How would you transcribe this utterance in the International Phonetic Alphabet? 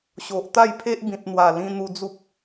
ɕo˨ʔ t̪a˥˧jpʰe˦ʔ bĩ˨t̚n̪wa˨˩lĩ˧ n̪u˧d͡zu˦p̚

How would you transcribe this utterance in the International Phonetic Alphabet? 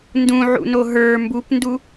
ndũʕṵno ɦə˞ mbupndu

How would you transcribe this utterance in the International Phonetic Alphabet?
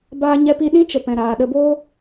baː˧ ɲɛ˧pi˧ ɗĩ˦t͡ʃə˨ pɛ̃˨ɾaː˨ɗə˧boː˦

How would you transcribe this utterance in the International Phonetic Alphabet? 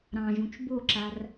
ɾɑ̃ʒũt͡ʃ boǁar

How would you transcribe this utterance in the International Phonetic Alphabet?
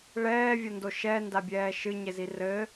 ɭɛːvʲɐndo ʃɛndabʲɛː ʃɨɲezi rɘ

